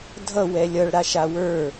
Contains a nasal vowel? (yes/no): no